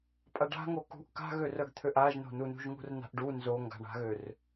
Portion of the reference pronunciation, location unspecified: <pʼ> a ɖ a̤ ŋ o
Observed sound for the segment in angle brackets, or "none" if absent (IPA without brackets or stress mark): pʼ